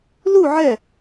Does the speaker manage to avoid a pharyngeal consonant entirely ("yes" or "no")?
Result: no